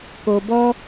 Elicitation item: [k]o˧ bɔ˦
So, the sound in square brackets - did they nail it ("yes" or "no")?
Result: yes